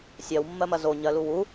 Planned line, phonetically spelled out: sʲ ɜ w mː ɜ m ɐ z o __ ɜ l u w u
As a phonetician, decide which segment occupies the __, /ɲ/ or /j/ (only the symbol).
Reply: ɲ